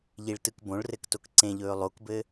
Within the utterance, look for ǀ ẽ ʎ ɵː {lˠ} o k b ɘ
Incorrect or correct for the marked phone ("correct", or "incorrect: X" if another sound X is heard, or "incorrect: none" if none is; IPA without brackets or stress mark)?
correct